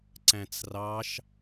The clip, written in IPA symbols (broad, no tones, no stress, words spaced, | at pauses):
ǀæ̃t͡srɑʃ